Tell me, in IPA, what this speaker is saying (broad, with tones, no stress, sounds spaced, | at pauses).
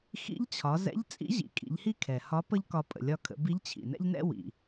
x ḭ˧˥ ʎ t͡ɕʰ ɒ˩˧ z ɛ̰˧˥ ʎ t͡sʼ ḭ˧˥ ʑ ḭ˩ kʼ ḭ˩˧ ʎ h i˥ kʰ ɛ˩ h ɒ˧˥ p ə˥ ʎ k ɒ˧ pʼ ə̰˩ lʲ ɒ˧ kʰ ə̰˩˧ b i˧˥ ʎ t͡ɕʰ ḭ˩ n ɛ̰˥ ʎ n ɛ̰˥ w ḭ˩